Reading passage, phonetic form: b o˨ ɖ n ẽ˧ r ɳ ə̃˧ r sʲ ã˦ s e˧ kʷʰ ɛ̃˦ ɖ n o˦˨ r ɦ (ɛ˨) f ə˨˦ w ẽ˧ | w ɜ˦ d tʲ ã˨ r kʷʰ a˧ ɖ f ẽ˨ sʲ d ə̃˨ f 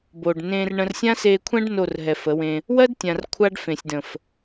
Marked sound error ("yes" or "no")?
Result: no